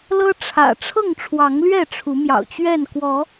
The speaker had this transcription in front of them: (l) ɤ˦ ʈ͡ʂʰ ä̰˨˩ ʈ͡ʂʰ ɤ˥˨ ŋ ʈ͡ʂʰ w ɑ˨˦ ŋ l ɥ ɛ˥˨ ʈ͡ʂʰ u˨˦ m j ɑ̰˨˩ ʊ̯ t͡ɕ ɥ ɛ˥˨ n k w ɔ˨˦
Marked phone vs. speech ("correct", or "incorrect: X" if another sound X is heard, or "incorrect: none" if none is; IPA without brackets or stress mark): correct